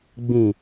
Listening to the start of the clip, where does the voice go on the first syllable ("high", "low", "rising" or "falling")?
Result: low